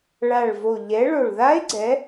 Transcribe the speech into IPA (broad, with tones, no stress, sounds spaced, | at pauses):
ɭ a˨˩ ɭ v o˨˩ ʎ ɛ˨˦ ɭ o˨˩ ɭ ð a˦˥ e̯ ɡ͡ǀ ɛ˨˦